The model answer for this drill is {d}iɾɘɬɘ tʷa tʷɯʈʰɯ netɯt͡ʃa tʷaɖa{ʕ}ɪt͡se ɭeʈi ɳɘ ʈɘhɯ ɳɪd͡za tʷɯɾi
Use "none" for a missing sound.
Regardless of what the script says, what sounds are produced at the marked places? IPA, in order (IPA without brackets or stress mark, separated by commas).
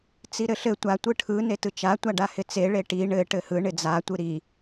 t͡s, h